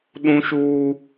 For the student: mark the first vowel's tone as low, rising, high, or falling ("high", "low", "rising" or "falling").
high